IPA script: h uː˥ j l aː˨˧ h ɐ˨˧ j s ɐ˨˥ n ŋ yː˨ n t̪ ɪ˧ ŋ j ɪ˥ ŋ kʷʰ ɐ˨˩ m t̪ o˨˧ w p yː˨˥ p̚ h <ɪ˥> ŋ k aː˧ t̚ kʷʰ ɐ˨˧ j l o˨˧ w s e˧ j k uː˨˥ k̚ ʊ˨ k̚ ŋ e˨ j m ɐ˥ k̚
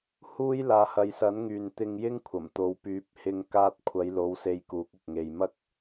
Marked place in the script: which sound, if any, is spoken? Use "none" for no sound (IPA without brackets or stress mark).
ɪ˧